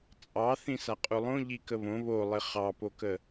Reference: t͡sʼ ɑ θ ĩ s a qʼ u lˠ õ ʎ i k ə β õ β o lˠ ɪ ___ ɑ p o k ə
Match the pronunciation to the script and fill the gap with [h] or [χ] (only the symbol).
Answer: χ